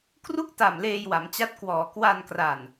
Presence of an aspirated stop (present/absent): absent